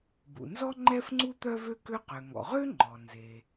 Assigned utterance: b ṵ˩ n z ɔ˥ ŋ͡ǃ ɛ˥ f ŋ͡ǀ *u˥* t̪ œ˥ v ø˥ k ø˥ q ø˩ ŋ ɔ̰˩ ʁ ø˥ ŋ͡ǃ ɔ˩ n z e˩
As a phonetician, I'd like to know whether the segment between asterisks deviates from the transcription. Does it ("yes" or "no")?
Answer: no